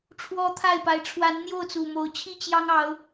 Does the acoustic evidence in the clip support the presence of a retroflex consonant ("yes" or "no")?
yes